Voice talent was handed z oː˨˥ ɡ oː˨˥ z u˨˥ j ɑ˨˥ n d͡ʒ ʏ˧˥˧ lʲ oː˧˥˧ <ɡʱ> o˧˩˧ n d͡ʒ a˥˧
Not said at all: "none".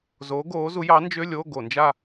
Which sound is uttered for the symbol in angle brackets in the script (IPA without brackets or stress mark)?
ɡ